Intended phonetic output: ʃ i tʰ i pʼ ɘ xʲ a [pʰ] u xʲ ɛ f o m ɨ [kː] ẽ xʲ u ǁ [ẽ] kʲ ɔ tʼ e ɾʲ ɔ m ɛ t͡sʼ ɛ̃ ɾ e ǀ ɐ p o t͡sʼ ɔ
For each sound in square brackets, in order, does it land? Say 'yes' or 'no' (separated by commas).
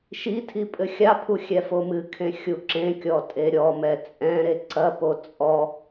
yes, no, yes